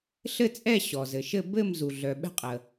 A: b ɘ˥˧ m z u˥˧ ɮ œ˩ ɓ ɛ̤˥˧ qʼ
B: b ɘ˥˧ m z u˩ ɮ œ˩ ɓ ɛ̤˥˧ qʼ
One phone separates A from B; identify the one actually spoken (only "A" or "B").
B